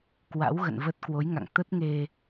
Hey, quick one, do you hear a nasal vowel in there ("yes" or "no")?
no